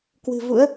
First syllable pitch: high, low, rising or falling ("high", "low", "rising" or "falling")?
low